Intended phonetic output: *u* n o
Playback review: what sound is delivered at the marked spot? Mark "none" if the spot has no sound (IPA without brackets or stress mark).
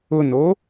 ʊ